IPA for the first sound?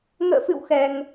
ŋ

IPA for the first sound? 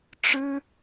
ʈ͡ʂ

